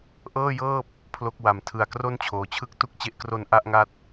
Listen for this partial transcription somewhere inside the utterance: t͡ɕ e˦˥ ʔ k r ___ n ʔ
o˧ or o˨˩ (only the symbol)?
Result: o˧